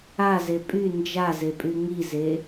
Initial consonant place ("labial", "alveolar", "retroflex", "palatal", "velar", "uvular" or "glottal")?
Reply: alveolar